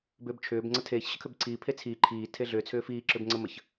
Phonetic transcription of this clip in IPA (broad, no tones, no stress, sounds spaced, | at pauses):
b ʏː b t͡ʃʰ ʏː b ŋ͡ǀ ə tʰ eː ç ɕ ə kʰ ʏ b ǀʰ iː pʰ e t͡sʰ iː ǃʰ iː tʰ e ɮ ʏː t͡sʰ ʏː f iː ǁ ʏ b ŋ͡ǀ ə m ə ç